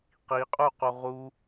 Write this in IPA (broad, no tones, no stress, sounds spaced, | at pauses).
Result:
q i qʼ u q u ʁ u